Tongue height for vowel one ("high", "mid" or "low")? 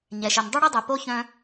mid